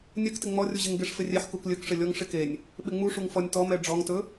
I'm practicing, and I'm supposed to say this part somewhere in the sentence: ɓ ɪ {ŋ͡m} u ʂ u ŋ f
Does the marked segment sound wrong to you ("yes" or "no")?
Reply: no